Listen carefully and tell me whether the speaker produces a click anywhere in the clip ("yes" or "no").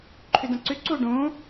yes